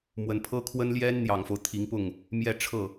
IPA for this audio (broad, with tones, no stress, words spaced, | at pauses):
mwə˧˥n pʰɤ˥kʰwə˥nljɛ˥n n̪jɑ˨˩ŋfo˦ʊ̯ t̪ʰi˧˥ŋpʊ˥˩ŋ | mjɛ˥˧ʈ͡ʂʰɤ˥˩